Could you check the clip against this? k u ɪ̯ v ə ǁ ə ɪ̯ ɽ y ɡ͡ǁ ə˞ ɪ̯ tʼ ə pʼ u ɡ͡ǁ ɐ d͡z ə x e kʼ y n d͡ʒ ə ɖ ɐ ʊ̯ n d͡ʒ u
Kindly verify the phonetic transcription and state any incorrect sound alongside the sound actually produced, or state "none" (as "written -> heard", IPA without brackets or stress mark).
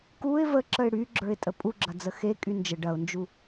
none